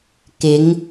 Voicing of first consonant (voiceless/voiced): voiceless